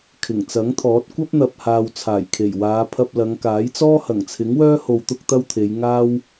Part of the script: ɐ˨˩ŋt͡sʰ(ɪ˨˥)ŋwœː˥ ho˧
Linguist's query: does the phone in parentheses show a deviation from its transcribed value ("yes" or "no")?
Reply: no